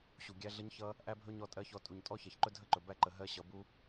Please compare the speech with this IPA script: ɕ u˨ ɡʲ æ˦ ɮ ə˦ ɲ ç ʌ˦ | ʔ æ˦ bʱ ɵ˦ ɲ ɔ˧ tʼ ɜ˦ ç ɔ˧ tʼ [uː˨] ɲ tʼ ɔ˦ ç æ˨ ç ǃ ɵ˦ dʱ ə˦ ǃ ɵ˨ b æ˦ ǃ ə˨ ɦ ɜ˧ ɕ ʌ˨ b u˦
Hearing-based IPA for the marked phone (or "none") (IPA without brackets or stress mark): u˨